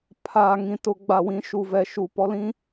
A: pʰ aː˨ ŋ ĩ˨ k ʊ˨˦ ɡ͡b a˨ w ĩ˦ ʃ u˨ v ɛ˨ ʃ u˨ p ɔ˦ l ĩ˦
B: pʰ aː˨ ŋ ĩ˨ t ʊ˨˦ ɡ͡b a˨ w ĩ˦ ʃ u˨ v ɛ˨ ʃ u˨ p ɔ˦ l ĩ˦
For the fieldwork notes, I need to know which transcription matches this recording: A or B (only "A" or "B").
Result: B